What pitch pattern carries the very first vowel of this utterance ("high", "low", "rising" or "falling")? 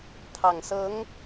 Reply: low